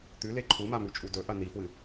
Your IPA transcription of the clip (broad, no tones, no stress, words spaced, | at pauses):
t̪ʉle ǃʰumamʉt͡ʃʼu dɵʔɐ nifwɨ